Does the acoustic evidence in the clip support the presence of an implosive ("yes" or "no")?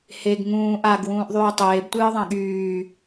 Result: yes